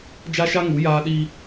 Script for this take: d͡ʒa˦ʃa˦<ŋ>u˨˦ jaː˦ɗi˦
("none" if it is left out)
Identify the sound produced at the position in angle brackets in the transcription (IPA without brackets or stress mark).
ŋ